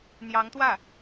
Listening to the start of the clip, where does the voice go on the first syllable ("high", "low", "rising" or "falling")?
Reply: rising